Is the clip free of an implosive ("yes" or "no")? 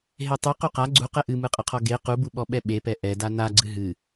no